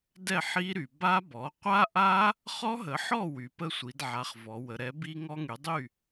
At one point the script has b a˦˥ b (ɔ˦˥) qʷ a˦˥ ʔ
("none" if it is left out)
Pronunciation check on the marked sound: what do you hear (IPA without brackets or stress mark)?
ɔ˩˥